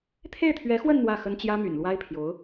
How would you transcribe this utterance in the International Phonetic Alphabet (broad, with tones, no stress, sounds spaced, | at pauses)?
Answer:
t̪ʰ e˥˩ ɪ̯ t̪ʰ ɥ ɛ˧˥ x w ə˥˧ n n̪ w ä˥˩ x ə˥ n t͡ɕ j ä˥ m y̰˨˩ n l w a˥ ɪ̯ pʰ j o˧˥ ʊ̯